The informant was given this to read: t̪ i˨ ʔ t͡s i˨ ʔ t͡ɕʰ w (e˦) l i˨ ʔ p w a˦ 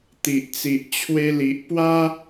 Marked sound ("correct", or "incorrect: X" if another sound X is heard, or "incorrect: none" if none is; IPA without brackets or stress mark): incorrect: e˧